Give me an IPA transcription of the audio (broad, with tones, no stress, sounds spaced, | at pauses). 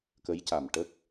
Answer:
k ə˧˥ j c a˨˩ m ʈ ə˦˥ k̚